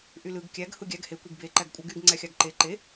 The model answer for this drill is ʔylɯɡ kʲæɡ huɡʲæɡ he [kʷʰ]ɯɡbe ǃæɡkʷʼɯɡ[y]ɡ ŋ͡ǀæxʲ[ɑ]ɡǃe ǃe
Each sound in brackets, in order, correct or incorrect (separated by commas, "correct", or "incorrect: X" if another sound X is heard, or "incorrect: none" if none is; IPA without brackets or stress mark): incorrect: kʷ, correct, correct